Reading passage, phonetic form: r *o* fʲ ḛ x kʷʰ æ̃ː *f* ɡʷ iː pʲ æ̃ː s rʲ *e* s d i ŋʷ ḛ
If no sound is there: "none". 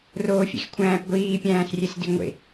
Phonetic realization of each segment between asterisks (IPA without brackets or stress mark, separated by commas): oː, p, e